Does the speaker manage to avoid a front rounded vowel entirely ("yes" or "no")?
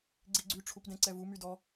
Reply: no